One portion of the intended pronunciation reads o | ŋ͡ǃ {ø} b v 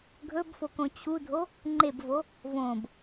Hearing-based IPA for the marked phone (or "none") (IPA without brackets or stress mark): e